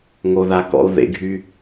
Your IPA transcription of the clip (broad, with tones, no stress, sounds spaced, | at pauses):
ŋ o˧ ð a˧ k ɔ̰˧˥ u̯ ð ḛ˧˥ ɡʱ y˥